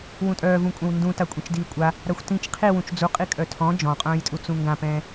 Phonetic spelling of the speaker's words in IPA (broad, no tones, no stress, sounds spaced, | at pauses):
w ũ tʼ œː v ũ kʷʼ ɛ̃ w n d ũ t a kʷʼ ĩ t͡ʃ d iː kʷʼ a | ɾ a xʷ t ĩ t͡ʃ qʰ i w ũ t͡ʃ d͡z u qʼ i kʼ œ tʰ ɔ̃ d͡ʒ ɔ̃ qʼ œ̃ː j tʼ u t͡s ũ ŋ ɡ ã p ɛ̃ː